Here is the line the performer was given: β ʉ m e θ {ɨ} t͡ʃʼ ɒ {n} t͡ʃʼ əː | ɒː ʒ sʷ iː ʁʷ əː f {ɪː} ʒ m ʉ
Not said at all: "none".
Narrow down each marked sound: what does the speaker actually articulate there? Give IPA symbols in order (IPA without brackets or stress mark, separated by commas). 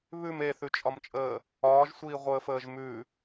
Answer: ʉ, m, əː